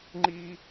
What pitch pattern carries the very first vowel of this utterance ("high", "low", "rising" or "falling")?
high